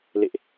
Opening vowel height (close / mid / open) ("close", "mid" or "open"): mid